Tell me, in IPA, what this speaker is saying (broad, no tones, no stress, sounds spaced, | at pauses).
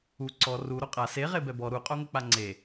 u ǀ ɔ r u ɾ o qʼ a s e ʁ e b ɛ b ɔ ɾ u qʼ o ŋ ʊ k͡p a ŋ͡ǀ e